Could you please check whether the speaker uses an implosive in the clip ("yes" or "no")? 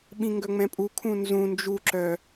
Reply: yes